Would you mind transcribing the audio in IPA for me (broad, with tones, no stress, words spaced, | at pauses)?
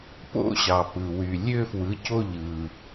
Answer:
po̰˥ ɕɑ˩pɯ˩ wy˩ lʲø˦˨fwɯ˩˥co˦˨ ʎɯ˩